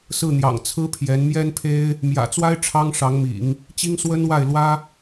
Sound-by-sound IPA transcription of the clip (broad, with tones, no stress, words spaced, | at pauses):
sɹ̩˥˩n̪jɑ̰˨˩ŋ t͡sʰɹ̩˥ pʰjɛ˧˥n mjɛ˥npʰe˥ɪ̯ | mjä̰˨˩t͡swa˥ɪ̯ ʈ͡ʂʰɑ˥ŋʂɑ˧˥ŋmḭ˨˩˦ŋ | t͡ɕi˥ŋswə˥nwa˥˩ɪ̯ lwä˥